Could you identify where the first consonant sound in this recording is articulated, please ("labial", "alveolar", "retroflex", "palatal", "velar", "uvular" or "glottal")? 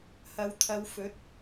glottal